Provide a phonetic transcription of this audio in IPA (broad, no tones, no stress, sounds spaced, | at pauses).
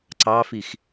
ǀ ɑ f i x